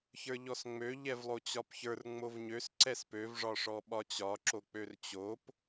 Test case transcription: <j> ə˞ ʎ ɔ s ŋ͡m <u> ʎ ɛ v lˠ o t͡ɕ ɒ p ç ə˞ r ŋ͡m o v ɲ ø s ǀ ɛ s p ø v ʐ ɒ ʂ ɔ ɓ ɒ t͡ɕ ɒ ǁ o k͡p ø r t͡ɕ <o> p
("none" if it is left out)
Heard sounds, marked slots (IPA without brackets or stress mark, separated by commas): ç, ø, o